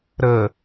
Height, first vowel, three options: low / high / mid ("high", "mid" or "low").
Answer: mid